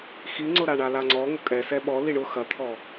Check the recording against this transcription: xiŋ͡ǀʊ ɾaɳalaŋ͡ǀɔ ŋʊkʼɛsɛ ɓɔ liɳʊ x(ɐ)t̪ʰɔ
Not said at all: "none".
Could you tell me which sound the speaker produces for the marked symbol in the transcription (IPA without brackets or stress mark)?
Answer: ɐ